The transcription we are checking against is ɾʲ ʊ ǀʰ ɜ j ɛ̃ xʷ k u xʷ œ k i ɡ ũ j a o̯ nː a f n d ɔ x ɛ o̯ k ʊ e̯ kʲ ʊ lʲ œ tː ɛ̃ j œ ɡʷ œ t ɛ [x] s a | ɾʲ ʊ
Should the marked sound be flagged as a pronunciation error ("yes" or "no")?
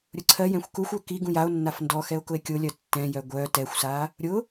yes